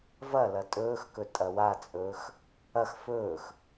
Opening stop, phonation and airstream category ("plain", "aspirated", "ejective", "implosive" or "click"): ejective